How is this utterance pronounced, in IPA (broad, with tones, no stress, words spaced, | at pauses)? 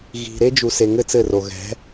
ɣi̤˨ɾe˦ d͡ʒu˨se˨ ŋɘ˧ t͡sɘ˦˨ro˨ ɣɛ̤˨˦